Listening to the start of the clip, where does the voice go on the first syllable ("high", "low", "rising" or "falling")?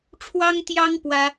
high